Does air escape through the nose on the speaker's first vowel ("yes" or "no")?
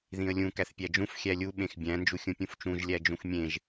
yes